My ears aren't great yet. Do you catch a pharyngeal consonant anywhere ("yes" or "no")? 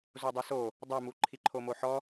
yes